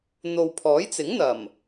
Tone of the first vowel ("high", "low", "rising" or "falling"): low